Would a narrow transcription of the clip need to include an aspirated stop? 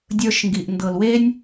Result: no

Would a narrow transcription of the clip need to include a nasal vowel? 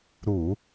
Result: no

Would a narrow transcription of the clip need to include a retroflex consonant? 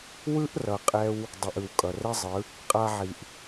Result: no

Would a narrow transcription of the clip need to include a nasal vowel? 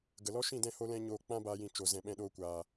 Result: yes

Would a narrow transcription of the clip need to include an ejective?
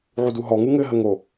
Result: no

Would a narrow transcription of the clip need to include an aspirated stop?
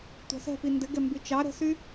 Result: no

